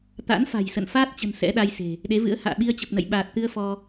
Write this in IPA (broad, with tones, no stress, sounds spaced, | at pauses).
t̪ a̰˧˥ n f a̤˨˩ j s ə̰˧˨ n f aː˦˥ t̚ t͡ɕ ə̤˨˩ n s ɛ̰˧˥ ɗ a˧ j s e̤˨˩ | ɗ e˨˦ v ɨ̰˧˥ ə̯ h a̰ː˧˨ ɓ i˧ ə̯ t͡ɕ ə˨˩ p̚ n ə̰˧˨ j ɓ aː˨˩ t̚ t̪ ɨ˧ ə̯ f ɔ˧